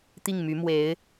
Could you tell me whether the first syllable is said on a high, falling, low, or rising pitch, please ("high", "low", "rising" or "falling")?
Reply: falling